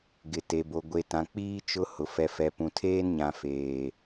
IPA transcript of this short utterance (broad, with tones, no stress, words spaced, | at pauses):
ɡɪ˨te˨bo˨ ɡʷe˨tã˨k͡piː˦ t͡ʃʊ˦ hʊ˨ fɛ˨fɛ˨pũ˨ tʰeː˦nɲã˨ feː˨